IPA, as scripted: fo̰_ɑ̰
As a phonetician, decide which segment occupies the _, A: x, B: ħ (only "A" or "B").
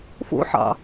B